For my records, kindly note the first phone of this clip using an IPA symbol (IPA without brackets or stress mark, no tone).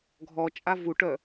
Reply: ɡʱ